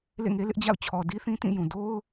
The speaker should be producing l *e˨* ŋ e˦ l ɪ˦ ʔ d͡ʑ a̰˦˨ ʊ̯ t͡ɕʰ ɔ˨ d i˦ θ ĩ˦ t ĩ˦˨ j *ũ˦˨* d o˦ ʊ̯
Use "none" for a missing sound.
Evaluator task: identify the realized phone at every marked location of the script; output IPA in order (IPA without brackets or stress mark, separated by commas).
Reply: ḛ˦˨, ũ˨